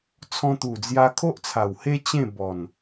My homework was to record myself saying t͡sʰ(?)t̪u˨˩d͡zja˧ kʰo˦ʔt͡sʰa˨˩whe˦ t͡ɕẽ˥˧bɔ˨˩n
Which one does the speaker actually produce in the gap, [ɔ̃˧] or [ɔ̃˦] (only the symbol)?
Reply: ɔ̃˧